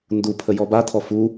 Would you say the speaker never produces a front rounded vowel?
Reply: yes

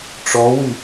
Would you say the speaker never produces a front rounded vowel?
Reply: no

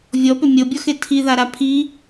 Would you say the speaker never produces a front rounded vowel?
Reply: no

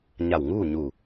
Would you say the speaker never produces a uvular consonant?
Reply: yes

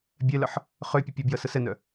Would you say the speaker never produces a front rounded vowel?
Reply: no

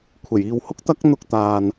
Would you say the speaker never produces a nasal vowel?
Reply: yes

